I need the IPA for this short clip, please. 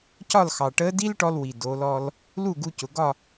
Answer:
c ɒ˥˨ l x ɑ˩ ʈ əː˧˥ d i˥ l ʈ ɔ˧ l w i˩ d o˩˧ l ɔ˧ l | l u˥˨ ɡ u˧ c ʊ˩ ɡ ɒ˥˨

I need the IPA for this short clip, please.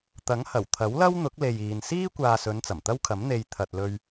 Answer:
t̪ ɐ˨˥ ŋ h ɐ˨˩ w t̪ʰ ɐ˨˥ w l ɐ˥ w n̪ ʊ˨˥ k̚ l e˨ j iː˨ n s iː˥ kʷ aː˨ s ɵ˨˧ n t͡s ɐ˨˩ m t̪ ɐ˥ w kʰ ɐ˨˥ m n̪ e˨ j t̪ʰ ɐ˨ t̚ l ɵ˧ ɥ

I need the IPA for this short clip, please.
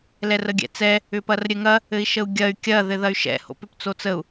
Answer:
l ɛ r ə ɡʲ ɛ̰ t͡s ɛ | ʏ p ɐ r ɾʲ ɘ ŋ ɐ | ɘ i̯ ʃ ə u̯ ɡʲ ɐ y̯ kʲ ɐ ð ɘ ð ɐ y̯ ʃ ɛ̰ h o̰ p ʏ p t͡s o t͡s ə u̯

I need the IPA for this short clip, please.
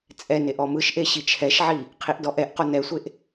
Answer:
t͡sʼ ɛ n e ʔ ɔ m ɯ ʃ ʔ e ɕ i t͡ʃʰ ɛ ʃ ʕ i | qʰ i ʔ d ɔ ʔ ɛ ʔ q o n ɛ sʷ e ʔ

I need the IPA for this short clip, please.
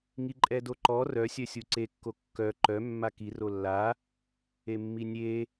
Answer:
ŋ i ǃʼ ɛ d o ǃ ɔ r œ sʲ œ sʲ u ǀ e kː o kː œ ǃ œ mː a k i r o lː a | e mː i nʲ e

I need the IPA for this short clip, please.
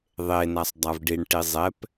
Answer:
ðˤ e n a sˤ dˤ a v ɖ i ɳ ʈ i zˤ ɛ p

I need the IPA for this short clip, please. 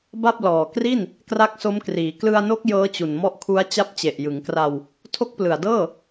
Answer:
b a˥˩ p̚ l ɔː˨˩ k r i˥˩ n | k r a˦˥ k̚ s o˦˥ m k r iː˩˦ k l ɯ˧ a̯ n o˦˥ k̚ j ɤː˦˥ t͡ɕ u˨˩ n m ɔ˦˥ ʔ kʰ u˦˥ a̯ t͡ɕ a˦˥ p̚ t͡ɕ e˨˩ ʔ j ɯ˩˦ ŋ k r a˧ w | tʰ o˦˥ k̚ p l ɯ˨˩ a̯ d ɤː˥˩

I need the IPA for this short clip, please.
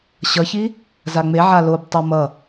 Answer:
ɕ ʌ ç i | z a ŋ͡m e ʕ a l o b tˤ o m ʌ

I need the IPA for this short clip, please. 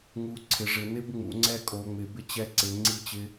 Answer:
ŋ u˨˦ ǀʰ ɪ˨˦ ʐ ɪ˨˦ n ɪ˦ b ŋ͡m ṵ˨˦ ŋ͡ǀ ɛ˦ kʼ o˨˦ ŋ͡m ɪ˨˦ b ɪ˦ t͡ɕ ɛ˦ ǀ ɪ˨˦ ŋ͡ǀ i˦ t͡ɕ ɪ˦

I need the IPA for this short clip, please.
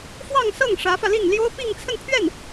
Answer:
f w ɑ˥˧ ŋ s ɤ˥˩ ŋ ʂ ä˧˥ f ä˧ l i˥˩ ŋ l j o˥ ʊ̯ p i˥˧ ŋ t͡sʰ ə˥˧ n pʰ ɥ ɛ˥˩ n

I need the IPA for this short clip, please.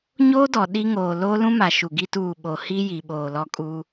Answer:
ɲ oː˦ d ɔ˨ ɗ i˦ ŋ oː˨ l oː˦ l ũ˦ m a˨ ʃ u˨ ɡ i˦ t uː˦˨ ɓ o˨ h i˦ j i˨ ɓ oː˨ l ɔ˦ kʼ u˦

